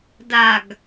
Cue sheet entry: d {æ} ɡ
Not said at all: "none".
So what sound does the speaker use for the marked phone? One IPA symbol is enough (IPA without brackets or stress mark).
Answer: a